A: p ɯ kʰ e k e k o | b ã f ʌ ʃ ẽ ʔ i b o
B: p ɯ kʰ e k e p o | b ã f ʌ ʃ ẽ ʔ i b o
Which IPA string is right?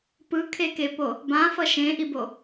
B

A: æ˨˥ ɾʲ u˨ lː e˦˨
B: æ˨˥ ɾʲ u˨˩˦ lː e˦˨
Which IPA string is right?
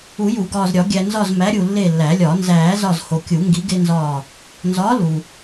A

